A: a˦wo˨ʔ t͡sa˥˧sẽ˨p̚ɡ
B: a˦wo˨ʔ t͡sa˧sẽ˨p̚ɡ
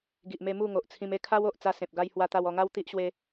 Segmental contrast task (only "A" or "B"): B